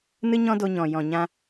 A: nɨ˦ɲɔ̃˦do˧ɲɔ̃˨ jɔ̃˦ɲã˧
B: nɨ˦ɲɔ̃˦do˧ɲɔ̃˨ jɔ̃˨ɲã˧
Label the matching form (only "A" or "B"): B